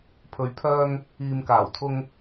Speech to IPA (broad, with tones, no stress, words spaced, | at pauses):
pʰɵ˨˧ɥpʰœː˧ŋ | iː˨mkaː˨˩wt̪ʰʊ˧ŋ